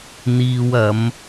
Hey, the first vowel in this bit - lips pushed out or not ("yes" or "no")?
no